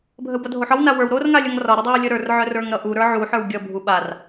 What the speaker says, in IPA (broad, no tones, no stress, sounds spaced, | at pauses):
bʱ ə w b ʌ dʱ o ħ ɒ w n a w ə˞ w ɾ o r ŋ a lʲ ʌ ŋ r ɒ ɾ ə dˤ a w lʲ ə ɾ ə˞ r ʕ œ r ə˞ ŋ ɾ ʌ ʔ u ɾ ə˞ ʕ u ħ ə˞ w ɡʲ ʌ bʱ u ɓ a r